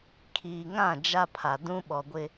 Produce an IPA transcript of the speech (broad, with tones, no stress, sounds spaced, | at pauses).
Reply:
kʰ iː˨ ŋ ã˦˨ d͡ʒ a˦ pʰ a˨ d ũ˦ ɓ ɔ˨ ɡʷ ɪ˨